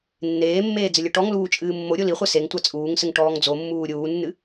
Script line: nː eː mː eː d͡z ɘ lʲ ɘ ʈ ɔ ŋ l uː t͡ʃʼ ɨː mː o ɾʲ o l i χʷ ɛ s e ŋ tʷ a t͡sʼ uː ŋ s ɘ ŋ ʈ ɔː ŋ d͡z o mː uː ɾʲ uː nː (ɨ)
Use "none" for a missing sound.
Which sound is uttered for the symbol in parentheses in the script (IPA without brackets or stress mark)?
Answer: ɨ